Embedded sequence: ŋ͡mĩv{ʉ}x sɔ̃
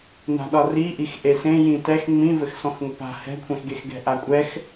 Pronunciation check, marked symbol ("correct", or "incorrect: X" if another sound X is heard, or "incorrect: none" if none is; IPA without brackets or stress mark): incorrect: ɘ